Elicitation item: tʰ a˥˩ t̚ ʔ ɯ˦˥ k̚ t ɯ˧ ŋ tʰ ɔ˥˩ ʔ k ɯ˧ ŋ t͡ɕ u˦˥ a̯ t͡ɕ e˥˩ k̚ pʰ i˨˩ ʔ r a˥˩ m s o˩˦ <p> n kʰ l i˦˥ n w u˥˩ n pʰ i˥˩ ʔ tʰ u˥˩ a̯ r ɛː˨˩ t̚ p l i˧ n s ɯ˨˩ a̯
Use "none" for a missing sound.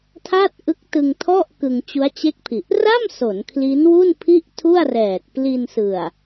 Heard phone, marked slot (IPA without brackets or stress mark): none